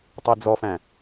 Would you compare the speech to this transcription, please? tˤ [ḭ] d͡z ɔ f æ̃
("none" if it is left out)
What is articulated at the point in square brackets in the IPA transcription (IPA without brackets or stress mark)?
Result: i